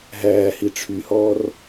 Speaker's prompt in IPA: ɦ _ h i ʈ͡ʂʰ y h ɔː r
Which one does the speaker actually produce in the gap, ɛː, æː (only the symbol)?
æː